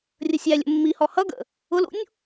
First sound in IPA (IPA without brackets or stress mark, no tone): rʲ